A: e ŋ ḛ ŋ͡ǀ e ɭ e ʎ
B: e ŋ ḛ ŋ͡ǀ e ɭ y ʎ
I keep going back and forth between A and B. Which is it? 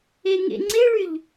B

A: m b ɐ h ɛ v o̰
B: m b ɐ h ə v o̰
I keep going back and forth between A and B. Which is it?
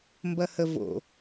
B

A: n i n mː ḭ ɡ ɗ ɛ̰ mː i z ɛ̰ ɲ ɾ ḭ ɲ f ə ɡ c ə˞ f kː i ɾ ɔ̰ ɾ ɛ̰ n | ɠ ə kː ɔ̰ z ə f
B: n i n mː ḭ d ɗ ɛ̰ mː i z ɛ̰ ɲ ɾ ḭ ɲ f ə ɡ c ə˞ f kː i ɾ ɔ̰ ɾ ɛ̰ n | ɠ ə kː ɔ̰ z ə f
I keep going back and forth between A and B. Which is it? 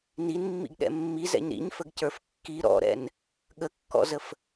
A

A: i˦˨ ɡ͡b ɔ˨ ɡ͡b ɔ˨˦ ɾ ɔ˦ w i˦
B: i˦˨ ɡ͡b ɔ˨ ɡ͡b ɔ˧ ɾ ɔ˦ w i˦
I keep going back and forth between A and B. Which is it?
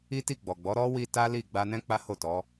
A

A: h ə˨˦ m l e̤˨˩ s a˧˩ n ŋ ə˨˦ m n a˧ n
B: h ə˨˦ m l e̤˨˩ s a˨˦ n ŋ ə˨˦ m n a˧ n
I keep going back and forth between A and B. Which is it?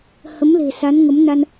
B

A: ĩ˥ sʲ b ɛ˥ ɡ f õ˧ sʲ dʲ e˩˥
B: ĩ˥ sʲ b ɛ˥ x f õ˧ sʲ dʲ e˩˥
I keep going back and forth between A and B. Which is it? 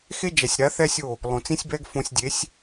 A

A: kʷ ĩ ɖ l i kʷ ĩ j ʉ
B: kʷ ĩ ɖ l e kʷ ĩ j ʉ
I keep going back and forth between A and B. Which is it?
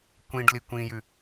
A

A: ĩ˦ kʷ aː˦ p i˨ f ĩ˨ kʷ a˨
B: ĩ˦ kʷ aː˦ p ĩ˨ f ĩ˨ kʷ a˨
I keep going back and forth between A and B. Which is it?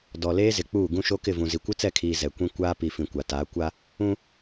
A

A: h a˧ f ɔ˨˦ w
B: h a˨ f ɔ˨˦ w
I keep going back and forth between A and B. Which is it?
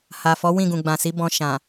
B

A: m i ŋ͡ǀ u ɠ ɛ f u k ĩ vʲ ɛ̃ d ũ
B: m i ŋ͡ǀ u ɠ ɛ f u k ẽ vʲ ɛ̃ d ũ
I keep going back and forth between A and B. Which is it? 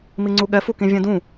A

